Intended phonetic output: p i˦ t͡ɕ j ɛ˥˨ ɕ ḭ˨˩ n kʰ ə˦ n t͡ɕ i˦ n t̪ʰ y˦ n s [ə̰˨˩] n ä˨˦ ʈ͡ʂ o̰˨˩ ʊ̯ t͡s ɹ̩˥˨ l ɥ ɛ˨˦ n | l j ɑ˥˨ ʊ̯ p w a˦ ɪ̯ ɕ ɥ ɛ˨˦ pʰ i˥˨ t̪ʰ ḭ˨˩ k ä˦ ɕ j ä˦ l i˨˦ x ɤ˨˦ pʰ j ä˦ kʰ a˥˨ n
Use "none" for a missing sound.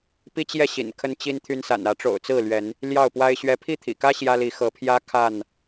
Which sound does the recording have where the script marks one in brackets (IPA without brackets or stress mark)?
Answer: a̰˨˩